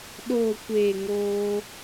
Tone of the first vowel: low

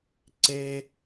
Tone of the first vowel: high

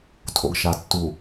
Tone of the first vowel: low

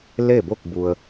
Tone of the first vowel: falling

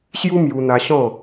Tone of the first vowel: high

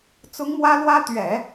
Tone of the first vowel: high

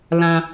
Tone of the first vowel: high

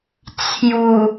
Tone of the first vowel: low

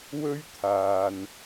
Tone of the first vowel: high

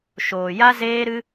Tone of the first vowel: low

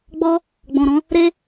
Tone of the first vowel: high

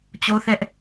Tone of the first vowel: high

